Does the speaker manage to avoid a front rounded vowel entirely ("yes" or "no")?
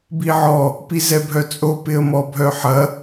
no